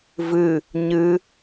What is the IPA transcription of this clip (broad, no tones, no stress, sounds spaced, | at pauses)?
v ɨ | ɲ ɨ